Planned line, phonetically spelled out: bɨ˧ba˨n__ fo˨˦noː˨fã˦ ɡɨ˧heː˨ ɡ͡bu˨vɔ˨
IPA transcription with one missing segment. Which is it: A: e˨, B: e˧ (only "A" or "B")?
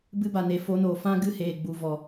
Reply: A